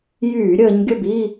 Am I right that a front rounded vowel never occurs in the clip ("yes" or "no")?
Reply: no